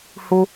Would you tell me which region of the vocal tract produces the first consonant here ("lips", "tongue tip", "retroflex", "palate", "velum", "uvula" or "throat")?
throat